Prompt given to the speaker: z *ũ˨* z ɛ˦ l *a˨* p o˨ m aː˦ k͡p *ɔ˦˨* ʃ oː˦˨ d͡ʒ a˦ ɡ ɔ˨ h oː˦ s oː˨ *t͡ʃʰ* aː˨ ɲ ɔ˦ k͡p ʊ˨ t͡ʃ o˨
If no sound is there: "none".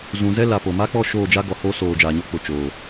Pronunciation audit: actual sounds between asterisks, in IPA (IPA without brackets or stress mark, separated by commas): ũ˨, a˨, ɔ˦˨, d͡ʒ